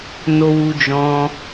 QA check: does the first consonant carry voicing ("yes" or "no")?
yes